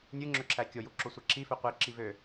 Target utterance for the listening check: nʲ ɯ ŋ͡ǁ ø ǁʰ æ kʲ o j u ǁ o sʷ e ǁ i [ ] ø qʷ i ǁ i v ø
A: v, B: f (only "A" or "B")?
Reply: B